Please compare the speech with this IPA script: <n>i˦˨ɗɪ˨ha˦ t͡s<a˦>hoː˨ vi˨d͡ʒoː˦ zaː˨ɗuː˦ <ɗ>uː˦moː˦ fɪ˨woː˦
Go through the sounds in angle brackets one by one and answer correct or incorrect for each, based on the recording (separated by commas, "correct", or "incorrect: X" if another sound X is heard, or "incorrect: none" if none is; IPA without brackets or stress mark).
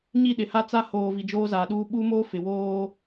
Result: incorrect: ɲ, correct, incorrect: ɓ